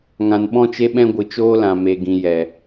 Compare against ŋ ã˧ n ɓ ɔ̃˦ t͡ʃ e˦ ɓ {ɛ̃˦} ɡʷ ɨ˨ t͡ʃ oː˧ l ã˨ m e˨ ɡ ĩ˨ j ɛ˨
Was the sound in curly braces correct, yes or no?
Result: yes